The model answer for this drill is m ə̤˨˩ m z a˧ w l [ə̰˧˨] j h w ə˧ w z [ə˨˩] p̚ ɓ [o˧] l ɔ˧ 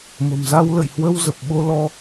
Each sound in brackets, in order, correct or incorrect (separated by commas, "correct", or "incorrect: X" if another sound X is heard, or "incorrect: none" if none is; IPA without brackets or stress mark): correct, correct, correct